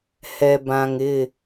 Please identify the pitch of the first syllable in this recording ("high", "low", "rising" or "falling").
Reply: low